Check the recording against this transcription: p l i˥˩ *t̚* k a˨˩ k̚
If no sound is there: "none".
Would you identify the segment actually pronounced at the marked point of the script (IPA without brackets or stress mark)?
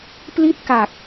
t̚